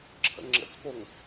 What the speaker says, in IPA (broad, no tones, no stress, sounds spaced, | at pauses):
ǁʰ ə̰ ŋ͡ǁ ə̰ t͡s p o ŋ